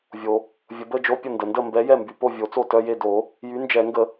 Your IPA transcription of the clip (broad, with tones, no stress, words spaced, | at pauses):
vʲo˩ | vʲə˨˩˦bə˧˥˧d͡ʒo˧˥˧pʲə˥˩ ndə˩ndə˥˩mbɛ˨˥ jɛ˥˩mby˩po˥˩ vʲo˨˩˦t͡so˥˩tœ˧˥˧je˥˩ do˨˩˦ | jy˨˥ nd͡ʒɛ˨˩˦ ŋɡə˨˩˦